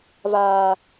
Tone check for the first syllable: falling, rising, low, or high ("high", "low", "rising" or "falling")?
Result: low